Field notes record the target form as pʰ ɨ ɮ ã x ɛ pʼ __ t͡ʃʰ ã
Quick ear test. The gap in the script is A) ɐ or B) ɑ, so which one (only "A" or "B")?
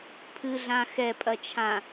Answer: A